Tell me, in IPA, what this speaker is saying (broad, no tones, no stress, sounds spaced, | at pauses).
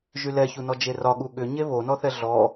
ʒ y l ɛ ç u n ɔ d͡ʒ e r ɒ ɠ u ɠ ʏ ɲ e β o n ɔ θ ɛ ɮ ɔ